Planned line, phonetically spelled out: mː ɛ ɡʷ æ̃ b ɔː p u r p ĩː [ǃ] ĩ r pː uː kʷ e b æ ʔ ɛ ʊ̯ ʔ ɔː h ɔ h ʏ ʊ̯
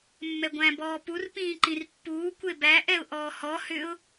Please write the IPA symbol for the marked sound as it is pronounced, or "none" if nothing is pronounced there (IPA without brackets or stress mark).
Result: ǃ